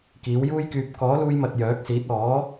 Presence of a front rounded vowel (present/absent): present